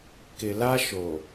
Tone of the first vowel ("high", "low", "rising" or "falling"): low